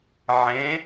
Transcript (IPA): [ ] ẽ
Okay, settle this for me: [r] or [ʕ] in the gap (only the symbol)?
ʕ